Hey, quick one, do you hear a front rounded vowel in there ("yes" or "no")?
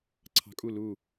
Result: no